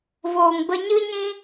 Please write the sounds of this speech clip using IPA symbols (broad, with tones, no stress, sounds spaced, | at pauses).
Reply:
v oː˨ ŋ b ə˧ ɲ ɨ˦ ɲ ĩ˦